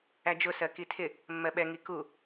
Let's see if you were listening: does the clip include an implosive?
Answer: yes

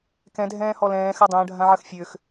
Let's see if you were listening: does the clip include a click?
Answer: no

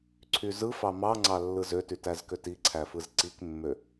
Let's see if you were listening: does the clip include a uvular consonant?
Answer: no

